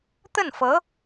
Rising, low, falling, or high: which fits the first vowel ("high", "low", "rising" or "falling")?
falling